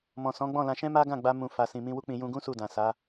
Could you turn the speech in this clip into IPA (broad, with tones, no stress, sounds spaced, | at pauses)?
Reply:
m ɔ̃˨ s ɔ̃˨˦ ɡ͡b ɔ̃˦˨ l ã˧ ʃ ɛ̃˦ m a˦ ɡ ã˦˨ ɡ͡b a˧ m ũ˧ f a˨ s ĩ˨ m ĩ˧ w u˦ k͡p ĩ˧ j ũ˧ ɡ ũ˦ s u˦˨ d ã˨ s a˨˦